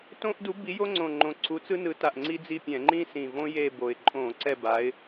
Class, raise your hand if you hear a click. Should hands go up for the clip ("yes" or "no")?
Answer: yes